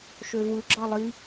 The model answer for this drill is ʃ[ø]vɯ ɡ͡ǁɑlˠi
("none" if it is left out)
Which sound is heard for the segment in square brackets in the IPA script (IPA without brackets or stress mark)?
ø